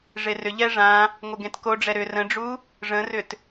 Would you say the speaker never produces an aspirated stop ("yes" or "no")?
yes